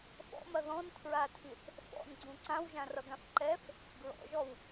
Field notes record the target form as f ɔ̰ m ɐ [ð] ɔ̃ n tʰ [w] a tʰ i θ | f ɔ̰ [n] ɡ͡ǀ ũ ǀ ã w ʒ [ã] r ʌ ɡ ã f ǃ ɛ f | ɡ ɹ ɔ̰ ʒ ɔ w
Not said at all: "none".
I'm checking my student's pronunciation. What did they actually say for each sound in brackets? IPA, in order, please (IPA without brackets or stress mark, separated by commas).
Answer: ð, ɹ, n, ã